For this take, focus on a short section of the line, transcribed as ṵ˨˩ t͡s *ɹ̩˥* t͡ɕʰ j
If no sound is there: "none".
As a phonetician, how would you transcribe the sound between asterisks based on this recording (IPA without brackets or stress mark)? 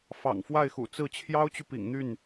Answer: ɹ̩˥˩